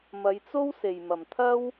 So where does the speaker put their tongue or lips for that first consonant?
lips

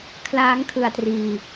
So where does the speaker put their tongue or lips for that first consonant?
velum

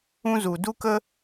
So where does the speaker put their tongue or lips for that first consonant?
tongue tip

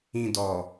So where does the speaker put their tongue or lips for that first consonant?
tongue tip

